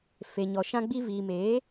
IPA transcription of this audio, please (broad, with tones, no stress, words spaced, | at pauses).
fe˨ɲɔ˨ ʃã˧ɡ͡bi˧ viː˨meː˨˦